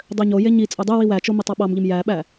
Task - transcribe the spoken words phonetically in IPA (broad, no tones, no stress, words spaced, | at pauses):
dˤøɲoje ɲi t͡sʼødˤøwiw æt͡ʃo mitˤɑɓɑmʎim jæɓæ